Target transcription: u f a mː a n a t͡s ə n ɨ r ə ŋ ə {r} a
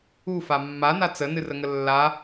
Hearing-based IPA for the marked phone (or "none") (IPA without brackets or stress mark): lː